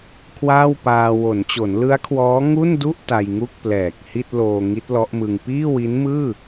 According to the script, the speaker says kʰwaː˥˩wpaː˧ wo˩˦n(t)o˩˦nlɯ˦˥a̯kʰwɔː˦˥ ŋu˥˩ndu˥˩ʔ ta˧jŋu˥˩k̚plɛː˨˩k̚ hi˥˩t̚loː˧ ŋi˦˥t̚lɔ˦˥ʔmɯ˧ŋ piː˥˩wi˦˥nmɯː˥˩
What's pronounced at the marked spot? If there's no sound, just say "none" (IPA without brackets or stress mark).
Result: t͡ɕ